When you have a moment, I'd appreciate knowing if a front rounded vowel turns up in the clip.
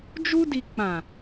no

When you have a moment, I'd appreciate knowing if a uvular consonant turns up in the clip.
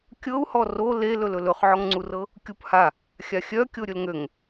yes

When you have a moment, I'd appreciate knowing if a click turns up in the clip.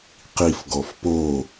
no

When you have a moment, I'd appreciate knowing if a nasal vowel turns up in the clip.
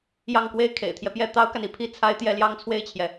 no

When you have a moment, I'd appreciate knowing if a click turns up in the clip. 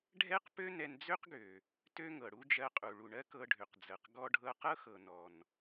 no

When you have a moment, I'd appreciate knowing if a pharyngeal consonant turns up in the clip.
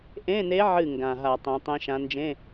yes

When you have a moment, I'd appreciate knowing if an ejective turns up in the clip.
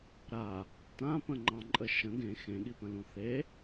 yes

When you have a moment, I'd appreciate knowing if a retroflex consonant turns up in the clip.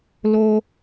no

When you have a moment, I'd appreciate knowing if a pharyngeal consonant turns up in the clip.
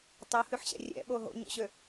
yes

